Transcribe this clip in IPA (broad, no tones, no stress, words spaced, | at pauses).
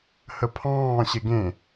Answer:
həpʰɑ̃ː ɕeɡẽ